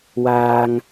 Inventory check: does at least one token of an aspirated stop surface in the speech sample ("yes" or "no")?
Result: no